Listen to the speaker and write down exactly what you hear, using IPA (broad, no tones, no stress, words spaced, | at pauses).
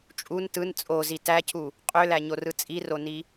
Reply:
t͡ʃʼun tɯn t͡sʼozi tæcʰu | qʼølæɲorɯ t͡sʼironi